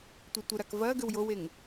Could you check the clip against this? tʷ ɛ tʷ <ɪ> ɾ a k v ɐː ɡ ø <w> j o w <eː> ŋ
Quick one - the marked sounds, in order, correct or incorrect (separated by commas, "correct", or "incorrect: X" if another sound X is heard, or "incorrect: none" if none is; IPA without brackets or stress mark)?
correct, correct, incorrect: e